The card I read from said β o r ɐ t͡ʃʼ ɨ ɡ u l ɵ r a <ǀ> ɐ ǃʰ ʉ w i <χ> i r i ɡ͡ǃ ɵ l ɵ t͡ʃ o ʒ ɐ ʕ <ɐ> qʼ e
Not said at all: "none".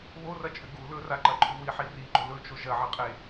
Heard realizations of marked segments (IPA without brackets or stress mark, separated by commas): ǃ, ħ, ɐ